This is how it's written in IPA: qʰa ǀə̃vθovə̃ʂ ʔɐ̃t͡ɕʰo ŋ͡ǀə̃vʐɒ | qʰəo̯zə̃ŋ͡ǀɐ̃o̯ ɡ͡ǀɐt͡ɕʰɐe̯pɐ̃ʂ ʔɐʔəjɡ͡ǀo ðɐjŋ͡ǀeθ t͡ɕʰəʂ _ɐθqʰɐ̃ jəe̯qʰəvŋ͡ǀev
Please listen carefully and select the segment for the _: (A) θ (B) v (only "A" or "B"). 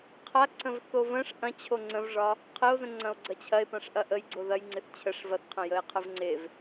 B